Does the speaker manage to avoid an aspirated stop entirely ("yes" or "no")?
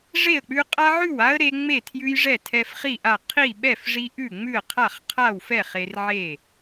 no